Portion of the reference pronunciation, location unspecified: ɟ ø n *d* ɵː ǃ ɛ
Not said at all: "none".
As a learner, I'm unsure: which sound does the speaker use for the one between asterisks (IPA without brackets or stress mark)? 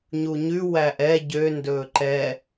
d